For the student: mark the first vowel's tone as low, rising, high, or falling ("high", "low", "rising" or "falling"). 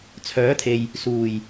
rising